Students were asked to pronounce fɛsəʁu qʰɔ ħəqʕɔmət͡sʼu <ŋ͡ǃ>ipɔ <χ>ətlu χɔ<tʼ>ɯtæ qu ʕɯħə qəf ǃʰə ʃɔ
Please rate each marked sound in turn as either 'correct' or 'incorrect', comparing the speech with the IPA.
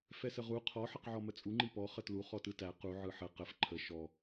correct, correct, incorrect: t

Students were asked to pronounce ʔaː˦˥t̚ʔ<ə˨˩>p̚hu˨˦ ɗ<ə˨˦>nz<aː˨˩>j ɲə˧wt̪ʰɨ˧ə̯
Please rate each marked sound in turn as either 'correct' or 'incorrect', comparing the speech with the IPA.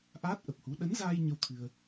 correct, correct, incorrect: aː˧

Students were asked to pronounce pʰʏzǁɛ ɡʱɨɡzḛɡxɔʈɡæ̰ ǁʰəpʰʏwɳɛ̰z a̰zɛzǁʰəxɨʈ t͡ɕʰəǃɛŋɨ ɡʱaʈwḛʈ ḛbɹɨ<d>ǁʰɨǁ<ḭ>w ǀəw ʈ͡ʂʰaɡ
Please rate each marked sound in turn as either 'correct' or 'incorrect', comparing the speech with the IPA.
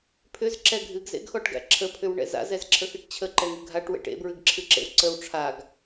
incorrect: ɡ, incorrect: ḛ

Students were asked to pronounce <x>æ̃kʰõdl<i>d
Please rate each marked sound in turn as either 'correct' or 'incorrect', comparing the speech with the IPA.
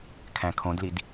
incorrect: kʰ, correct

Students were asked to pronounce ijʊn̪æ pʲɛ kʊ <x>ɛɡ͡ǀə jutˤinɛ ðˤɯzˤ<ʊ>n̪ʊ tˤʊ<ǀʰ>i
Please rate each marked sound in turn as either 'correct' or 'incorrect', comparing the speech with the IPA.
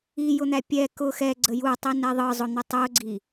correct, correct, incorrect: ɡ͡ǀ

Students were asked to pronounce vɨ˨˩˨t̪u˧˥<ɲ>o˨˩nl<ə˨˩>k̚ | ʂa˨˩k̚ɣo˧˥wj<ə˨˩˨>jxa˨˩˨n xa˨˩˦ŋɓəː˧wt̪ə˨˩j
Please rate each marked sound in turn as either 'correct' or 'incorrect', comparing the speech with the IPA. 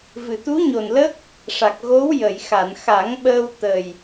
correct, incorrect: ə˦˥, correct

